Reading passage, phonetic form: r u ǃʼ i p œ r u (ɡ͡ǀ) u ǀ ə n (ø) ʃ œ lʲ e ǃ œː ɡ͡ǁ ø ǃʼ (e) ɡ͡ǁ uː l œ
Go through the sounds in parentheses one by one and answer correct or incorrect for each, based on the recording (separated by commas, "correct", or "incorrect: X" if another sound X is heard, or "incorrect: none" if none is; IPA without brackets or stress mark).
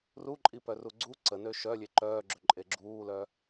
correct, correct, correct